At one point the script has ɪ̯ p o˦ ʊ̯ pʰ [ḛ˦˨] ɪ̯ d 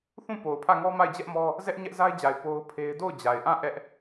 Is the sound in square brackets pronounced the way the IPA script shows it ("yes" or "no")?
no